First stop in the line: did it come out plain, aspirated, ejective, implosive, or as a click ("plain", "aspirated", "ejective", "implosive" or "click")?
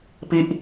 plain